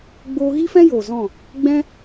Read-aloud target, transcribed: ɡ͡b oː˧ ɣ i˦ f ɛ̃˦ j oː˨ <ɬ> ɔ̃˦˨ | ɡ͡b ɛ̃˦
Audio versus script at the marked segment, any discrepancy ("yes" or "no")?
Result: yes